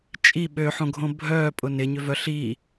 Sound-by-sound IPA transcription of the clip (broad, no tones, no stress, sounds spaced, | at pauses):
t͡ʃʼ i ɓ ø ħ õ ɡʱ õ bʱ œː pʼ ʊ n ɪ ɲ ʏ v œ ɬ i